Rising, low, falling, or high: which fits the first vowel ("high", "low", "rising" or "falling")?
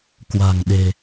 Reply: low